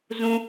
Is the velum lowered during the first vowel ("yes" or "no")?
yes